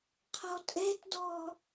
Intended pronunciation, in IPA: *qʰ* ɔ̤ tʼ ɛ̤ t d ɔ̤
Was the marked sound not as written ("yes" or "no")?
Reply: no